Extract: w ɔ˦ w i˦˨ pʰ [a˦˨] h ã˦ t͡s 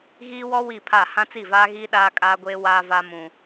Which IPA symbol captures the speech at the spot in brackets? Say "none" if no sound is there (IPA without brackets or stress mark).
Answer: a˦˨